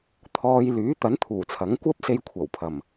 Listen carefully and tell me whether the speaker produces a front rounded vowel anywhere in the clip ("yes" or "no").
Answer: yes